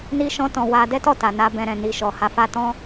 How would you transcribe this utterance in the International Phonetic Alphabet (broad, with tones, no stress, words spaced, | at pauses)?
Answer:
ni˦ʃɔ̃˦tɔ̃˧ wa˦ dɛ˦tɔ˦˨ta˨ na˧ bɛ̃˧ɾɛ̃˨ni˧ ʃɔ˨ha˧fa˦ tɔ̃˦